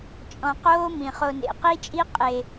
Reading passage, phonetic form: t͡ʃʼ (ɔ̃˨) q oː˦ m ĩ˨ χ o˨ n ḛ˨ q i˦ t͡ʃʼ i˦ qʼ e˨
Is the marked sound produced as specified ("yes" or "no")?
yes